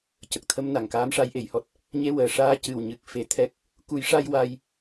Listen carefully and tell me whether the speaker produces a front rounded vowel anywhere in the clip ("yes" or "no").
no